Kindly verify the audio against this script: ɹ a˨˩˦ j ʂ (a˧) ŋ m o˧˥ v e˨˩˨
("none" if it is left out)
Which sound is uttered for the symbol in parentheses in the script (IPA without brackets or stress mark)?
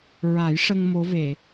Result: ə˧